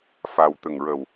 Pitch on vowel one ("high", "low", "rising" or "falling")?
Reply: low